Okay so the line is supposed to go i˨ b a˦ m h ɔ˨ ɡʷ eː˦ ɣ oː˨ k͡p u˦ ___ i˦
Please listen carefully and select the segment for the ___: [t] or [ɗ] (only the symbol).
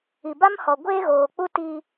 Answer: t